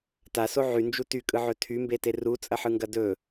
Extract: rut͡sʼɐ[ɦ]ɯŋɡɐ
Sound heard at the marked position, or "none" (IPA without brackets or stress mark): ħ